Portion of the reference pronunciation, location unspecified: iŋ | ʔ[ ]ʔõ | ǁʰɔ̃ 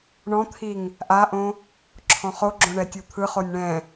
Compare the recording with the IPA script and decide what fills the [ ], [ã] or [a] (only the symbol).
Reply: a